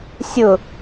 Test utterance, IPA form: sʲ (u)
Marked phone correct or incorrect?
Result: incorrect